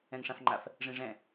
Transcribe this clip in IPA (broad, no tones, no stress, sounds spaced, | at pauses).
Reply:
ɛ̃ ŋ ʂ ã f ŋ͡ǃ a f | ʐ ĩ ʐ ɛ̃